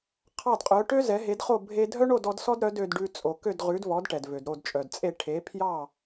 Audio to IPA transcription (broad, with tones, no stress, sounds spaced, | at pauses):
qʰ ɑ˥˩ d qʼ œ˩˥ ʈ ø˥ z ɛ˩˥ ɦ e˩˥ d χ o˥˩ bʱ e˧ dʱ œ˥ ɳ o˥˩ d ɔ˩˥ d s ɔ˥ d ɾ œ˩˥ d ø˧ d ɖ ʉ˧ t͡sʼ o˩ k ø˥˩ d ʁ ʉ˩˥ d v ɔ˩˥ d ʈ ɛ˩ d v ø˩ d ɾ o˥˩ d t͡ʃʼ œ˩ d t͡sʼ e˥˩ ʈʰ e˩˥ pʰ j ɑ˥˩